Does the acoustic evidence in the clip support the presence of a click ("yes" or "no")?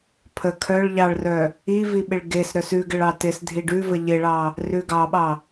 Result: no